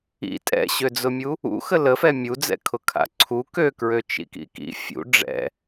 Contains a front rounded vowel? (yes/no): yes